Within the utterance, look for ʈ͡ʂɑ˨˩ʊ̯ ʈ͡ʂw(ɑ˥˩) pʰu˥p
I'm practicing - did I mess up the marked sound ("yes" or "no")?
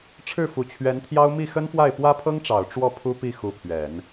yes